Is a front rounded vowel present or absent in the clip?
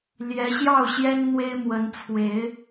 absent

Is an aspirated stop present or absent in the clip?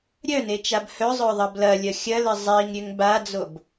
absent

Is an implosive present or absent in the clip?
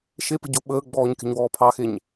present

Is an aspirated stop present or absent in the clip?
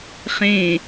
absent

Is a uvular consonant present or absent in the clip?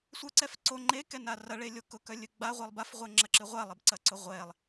present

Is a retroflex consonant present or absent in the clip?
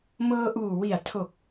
absent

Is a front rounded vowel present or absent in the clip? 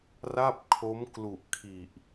absent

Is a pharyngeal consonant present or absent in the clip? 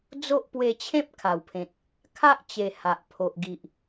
absent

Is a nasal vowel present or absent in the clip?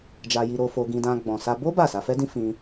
present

